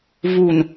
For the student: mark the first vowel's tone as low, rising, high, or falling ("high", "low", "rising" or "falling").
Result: low